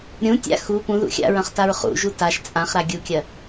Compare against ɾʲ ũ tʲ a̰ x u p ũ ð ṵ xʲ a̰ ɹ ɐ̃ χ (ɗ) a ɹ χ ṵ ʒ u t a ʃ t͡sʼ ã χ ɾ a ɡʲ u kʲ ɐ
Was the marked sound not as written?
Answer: yes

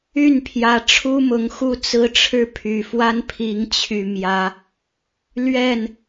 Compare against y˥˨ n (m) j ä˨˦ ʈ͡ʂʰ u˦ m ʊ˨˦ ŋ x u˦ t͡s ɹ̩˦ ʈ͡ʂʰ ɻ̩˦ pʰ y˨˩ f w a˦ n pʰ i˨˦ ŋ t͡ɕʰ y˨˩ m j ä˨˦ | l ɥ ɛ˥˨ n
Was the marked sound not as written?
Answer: yes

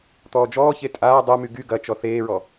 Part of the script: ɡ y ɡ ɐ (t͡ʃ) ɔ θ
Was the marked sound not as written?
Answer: no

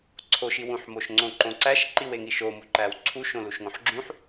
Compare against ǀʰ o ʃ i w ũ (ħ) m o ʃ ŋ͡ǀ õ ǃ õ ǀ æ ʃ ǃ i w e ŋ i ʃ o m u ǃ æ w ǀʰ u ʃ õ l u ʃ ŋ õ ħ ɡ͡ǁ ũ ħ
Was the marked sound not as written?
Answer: no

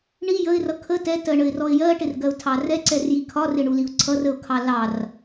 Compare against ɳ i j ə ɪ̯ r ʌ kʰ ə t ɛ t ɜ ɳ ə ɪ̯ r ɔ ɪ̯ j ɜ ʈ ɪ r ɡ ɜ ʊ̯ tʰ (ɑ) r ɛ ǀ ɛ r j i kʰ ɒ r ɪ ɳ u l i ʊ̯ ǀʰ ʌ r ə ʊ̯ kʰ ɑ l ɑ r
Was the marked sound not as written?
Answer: no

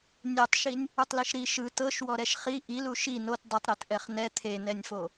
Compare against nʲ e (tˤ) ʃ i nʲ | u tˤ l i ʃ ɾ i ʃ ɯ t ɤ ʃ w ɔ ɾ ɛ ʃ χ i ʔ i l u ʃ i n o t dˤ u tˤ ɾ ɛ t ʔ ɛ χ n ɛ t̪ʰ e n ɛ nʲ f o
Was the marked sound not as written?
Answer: no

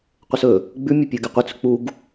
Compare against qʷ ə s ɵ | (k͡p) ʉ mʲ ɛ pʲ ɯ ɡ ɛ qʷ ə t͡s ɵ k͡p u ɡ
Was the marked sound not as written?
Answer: yes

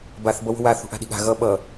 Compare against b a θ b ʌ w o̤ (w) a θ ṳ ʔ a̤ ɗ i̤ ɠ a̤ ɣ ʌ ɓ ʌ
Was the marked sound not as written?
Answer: no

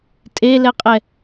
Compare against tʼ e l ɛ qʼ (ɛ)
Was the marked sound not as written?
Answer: no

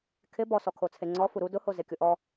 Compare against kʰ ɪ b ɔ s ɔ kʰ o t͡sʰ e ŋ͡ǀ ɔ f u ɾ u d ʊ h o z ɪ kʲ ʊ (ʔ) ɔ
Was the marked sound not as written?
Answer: no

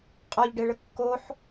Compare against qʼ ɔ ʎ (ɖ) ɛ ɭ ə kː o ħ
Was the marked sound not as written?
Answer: no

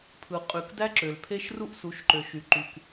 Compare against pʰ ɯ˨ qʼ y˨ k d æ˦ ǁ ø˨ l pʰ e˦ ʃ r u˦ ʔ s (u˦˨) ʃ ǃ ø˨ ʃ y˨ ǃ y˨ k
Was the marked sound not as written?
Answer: yes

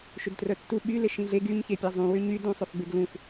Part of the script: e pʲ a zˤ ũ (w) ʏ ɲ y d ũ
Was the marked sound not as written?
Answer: no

